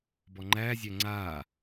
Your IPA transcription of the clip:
b ɔ ŋ͡ǃ æː zʲ æ ŋ͡ǀ aː

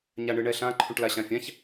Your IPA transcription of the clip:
ɲ a ɳ ɯ ɳ ɛ ɬ ã ǃʰ ũ ʈ l a ɕ ã fʲ ã ç

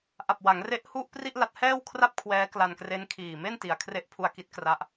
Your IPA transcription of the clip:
ʔ a˨˩ p̚ w a˩˦ ŋ r e˦˥ ʔ h u˥˩ ʔ p r i˥˩ ʔ l a˦˥ t̚ h ɛː˥˩ w kʰ r a˥˩ p̚ kʰ w ɛː˦˥ k l a˧ n k r e˦˥ n kʰ iː˨˩ m e˥˩ n t i˩˦ a̯ kʰ r e˦˥ ʔ pʰ u˧ a̯ k i˦˥ t̚ k r a˦˥ ʔ

